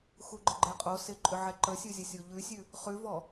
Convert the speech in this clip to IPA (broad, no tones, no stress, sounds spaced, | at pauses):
x u ɡ͡ǃ ə ɡ͡ǃ ɛ qʼ o s ɪ ǃʼ ʏ ʕ ɛ ǃ ə sʲ u zʲ ə sʲ o ʎ ʉ sʲ ʉ | χ ʉ v ɔ